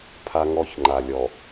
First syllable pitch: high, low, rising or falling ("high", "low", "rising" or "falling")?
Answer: high